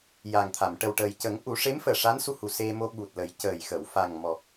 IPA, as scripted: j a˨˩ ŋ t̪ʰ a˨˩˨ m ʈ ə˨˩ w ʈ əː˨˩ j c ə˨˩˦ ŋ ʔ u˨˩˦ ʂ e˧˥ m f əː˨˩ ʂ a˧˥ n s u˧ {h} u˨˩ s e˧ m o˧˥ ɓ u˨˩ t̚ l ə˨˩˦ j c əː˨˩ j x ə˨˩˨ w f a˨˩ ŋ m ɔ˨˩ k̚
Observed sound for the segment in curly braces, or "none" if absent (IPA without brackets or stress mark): h